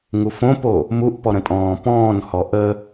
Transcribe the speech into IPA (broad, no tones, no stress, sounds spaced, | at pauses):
ŋ u f õ p o | m u ʔ p ɔ ɾ ə̃ tʼ ɔ̃ː p ɔ̃ː n h ɔ ʔ ə